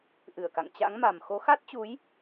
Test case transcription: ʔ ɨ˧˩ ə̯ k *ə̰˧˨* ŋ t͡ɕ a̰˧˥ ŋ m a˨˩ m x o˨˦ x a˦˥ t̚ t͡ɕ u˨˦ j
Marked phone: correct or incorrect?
incorrect